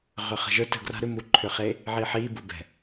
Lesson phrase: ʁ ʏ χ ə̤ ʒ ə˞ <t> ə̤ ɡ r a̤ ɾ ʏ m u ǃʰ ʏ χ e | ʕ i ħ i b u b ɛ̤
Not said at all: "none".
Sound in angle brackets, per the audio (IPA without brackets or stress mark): t